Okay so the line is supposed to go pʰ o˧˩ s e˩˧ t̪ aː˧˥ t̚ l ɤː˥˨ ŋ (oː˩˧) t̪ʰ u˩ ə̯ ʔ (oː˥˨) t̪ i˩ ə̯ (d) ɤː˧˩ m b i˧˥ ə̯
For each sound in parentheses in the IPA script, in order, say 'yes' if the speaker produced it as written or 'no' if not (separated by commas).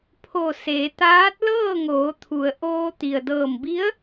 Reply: yes, no, yes